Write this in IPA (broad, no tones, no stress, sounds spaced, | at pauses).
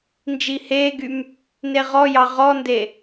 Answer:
n d͡ʒ i h eː ɡ y m | n e ʁ ɔ j ɑ ʁ ɔ n d e